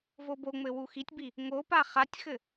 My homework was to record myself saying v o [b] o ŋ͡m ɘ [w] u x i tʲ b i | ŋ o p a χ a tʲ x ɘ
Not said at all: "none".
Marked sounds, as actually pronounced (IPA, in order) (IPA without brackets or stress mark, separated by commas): b, w